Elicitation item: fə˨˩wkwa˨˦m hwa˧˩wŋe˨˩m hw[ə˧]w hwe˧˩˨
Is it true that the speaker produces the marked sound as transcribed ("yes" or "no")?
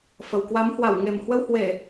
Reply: yes